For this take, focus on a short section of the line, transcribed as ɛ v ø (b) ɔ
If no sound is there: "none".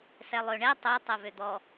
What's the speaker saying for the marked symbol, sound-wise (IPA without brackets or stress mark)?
d̪